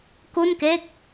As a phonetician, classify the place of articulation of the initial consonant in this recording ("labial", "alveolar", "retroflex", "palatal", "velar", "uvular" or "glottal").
velar